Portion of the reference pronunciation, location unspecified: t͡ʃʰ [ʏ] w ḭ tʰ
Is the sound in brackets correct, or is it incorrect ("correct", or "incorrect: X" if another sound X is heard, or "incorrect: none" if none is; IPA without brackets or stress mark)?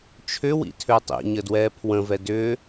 correct